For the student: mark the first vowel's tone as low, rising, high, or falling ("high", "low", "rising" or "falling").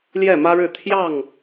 falling